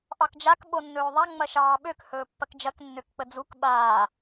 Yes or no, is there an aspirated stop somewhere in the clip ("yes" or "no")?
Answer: no